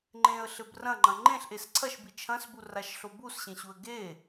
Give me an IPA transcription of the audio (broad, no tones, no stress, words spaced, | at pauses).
ŋ͡ǃẽə̯ɬɘb rɐ̃ŋ͡ǃɐ̃ ŋ͡ǃẽɬʔes ǀʰɐʃbi t͡ʃʰɐ̃sburaʃɬo busɕẽɕuə̯ ɡe